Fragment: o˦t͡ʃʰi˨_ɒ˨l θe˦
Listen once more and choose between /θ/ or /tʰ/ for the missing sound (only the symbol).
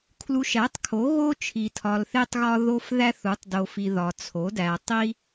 tʰ